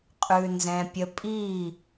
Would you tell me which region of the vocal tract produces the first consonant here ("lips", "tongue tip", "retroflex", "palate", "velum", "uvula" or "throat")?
uvula